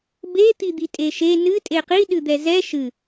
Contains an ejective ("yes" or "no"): yes